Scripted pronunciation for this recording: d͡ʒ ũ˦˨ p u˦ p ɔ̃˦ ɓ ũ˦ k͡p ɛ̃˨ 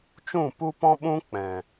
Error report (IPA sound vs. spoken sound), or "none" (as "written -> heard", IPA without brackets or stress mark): d͡ʒ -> t͡ʃ